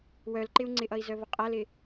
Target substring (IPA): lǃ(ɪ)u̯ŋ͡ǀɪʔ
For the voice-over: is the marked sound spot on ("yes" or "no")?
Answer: yes